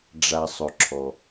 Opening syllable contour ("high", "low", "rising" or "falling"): low